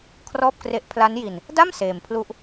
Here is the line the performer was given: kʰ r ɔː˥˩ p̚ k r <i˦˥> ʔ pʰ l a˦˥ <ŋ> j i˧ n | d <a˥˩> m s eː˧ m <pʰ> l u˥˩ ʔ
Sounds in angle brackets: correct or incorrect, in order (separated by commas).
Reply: incorrect, incorrect, correct, correct